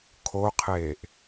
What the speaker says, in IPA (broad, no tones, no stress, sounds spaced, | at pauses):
kʰ o qʰ eː ʔ